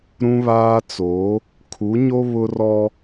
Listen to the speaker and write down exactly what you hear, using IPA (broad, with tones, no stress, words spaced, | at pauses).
ɾũ˦βaː˦ t͡so˨˦ | kʰu˨˦ɲo˦ βʊ˦rɔ˦